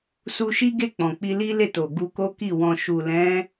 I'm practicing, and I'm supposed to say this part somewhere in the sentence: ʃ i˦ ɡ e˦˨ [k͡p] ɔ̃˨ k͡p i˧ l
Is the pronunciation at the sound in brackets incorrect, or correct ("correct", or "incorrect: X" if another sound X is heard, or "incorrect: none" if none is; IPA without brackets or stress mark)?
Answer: correct